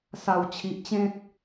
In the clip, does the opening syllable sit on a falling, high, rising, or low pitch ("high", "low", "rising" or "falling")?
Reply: low